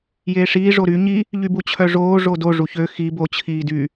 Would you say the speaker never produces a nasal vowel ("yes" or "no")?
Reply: yes